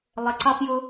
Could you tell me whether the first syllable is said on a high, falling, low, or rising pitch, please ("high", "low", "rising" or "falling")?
low